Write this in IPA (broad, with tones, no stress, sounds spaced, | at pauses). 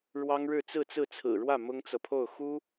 ɻ w ɑ˥ ŋ ɻ ɻ̩˥˧ t͡s ɹ̩˥˧ t͡s ɹ̩˥˩ t͡sʰ ɹ̩˨˩ ɻ w ä˥˩ m ʊ˥ ŋ t͡s ɤ˨ pʰ o˥˩ ʊ̯ x u˥